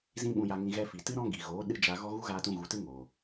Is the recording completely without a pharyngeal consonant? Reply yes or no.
yes